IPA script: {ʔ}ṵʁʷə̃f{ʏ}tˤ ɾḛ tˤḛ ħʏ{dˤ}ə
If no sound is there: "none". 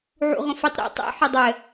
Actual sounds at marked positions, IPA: ʕ, ɨ, dˤ

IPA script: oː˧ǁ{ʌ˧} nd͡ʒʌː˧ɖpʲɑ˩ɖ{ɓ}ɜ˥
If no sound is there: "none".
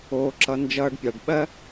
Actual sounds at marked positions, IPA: ʌ˧, ɓ

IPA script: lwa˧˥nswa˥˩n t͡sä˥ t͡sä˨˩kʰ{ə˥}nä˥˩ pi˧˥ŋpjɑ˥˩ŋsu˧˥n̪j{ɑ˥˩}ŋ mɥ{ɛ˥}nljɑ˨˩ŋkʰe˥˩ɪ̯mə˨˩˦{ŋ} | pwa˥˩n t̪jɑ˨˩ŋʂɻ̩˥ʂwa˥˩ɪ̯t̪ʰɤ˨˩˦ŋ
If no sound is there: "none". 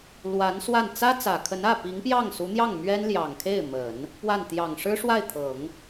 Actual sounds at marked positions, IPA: ə˧˥, ɑ˥˩, ɛ˥, n

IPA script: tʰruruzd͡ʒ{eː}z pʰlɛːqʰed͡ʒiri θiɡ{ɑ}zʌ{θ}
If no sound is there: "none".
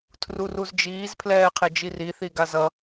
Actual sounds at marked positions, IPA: iː, a, none

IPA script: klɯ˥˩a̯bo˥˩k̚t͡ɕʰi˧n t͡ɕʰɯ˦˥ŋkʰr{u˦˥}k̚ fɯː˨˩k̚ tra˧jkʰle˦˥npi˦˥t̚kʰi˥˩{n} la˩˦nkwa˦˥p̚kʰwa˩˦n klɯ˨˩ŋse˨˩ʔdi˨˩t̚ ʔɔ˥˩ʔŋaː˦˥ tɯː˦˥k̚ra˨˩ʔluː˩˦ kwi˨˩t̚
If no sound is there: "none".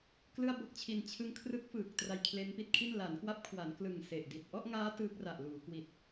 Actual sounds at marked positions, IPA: ɯ˦˥, n

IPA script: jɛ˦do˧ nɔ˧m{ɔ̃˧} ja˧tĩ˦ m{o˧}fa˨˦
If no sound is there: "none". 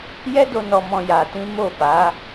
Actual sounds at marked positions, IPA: ɔ̃˧, o˦˨

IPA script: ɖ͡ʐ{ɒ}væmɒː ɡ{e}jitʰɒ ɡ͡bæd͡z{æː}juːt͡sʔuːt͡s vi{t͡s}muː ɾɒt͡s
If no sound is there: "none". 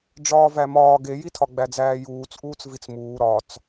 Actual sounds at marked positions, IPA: ɒː, e, æː, t͡s

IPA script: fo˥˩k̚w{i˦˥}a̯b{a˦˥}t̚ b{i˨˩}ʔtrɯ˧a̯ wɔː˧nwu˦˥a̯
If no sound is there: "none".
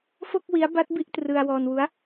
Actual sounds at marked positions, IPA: i˦˥, a˦˥, i˥˩

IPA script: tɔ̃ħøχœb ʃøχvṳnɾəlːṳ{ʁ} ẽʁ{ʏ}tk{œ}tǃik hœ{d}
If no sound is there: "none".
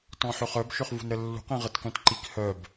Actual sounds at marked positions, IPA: q, ə, œ̃, b

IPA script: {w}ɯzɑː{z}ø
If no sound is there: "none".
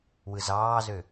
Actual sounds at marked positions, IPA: w, z

